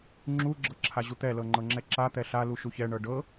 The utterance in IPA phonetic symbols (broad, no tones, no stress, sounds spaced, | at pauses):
ŋ͡ǁ u ɡ͡ǁ ɤ ǁʰ a ʑ u t̪ ɛ l ɤ ŋ͡ǃ ɤ ŋ͡ǁ ɛ ǁ a t̪ ɛ ɬ a l u ʃ u ç ɛ ɳ ɤ ɖ ɤ